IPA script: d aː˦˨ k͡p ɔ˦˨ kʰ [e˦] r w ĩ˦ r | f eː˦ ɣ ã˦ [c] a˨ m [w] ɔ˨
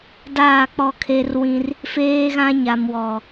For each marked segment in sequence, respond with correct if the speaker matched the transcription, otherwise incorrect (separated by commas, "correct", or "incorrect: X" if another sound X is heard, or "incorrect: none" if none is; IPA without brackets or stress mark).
correct, incorrect: ɲ, correct